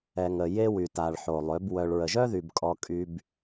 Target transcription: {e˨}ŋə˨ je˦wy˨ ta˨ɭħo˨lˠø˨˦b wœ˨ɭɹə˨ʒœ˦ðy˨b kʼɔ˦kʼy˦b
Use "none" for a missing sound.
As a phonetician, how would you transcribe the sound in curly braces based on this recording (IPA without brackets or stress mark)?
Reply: ɛ˨